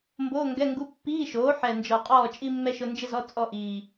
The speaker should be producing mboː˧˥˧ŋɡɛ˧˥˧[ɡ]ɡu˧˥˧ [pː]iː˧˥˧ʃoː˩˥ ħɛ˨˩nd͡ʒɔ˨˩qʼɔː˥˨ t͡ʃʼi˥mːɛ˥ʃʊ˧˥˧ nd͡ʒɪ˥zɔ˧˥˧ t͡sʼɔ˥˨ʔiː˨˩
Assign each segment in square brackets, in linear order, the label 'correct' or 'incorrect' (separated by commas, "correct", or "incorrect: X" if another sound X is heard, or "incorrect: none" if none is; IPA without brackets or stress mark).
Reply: incorrect: ŋ, correct